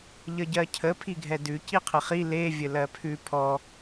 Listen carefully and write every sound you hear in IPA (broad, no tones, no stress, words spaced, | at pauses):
ʎəɟɜcʰə pʰiɡʱɛdʉ ciqʰəχi le vʲəlɜpʰʉ pʰɔ